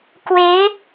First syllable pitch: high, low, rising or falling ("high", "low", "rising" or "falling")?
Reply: rising